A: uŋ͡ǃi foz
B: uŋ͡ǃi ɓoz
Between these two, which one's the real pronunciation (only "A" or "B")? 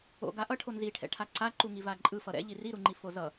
A